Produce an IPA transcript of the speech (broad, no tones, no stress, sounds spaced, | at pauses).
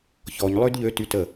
ç ɔ ɲ lˠ ø d ʎ ø t y t ə